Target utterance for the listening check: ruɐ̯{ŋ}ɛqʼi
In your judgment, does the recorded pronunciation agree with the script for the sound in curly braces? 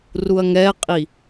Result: yes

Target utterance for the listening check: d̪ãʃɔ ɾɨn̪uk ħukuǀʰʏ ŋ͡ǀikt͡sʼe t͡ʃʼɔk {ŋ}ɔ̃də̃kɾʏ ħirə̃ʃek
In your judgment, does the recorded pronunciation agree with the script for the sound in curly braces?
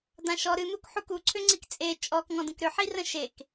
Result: yes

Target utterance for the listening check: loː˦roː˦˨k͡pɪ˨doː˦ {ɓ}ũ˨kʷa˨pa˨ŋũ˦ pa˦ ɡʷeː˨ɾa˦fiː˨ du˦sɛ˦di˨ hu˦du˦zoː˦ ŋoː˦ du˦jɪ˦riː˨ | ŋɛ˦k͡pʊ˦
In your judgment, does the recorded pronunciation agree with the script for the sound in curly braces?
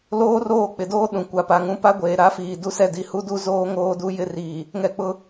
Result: no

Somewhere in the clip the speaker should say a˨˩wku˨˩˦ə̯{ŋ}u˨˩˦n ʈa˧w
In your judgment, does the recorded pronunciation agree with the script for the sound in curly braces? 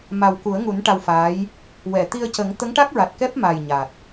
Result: yes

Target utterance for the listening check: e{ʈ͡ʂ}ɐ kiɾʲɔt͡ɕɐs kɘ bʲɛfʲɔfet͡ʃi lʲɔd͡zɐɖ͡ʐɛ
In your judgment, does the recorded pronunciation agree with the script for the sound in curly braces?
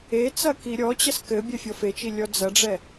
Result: no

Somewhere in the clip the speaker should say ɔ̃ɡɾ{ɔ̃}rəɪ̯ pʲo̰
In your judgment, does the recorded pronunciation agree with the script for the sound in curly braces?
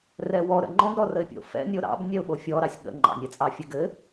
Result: no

